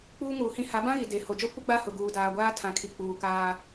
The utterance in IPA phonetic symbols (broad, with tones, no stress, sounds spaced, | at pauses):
k͡p uː˦ ŋ uː˨ h ĩ˦ h a˨˦ b ã˦ ɣ i˨ d e˨ h o˨ d͡ʒ ɔ˦ kʷ ɪ˦ ɡ͡b a˦ h ʊ˨ ɡ uː˨ d aː˨ ɡʷ aː˦ tʰ ã˨ kʰ i˨ k͡p uː˨ k aː˦